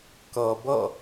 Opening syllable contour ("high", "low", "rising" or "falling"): low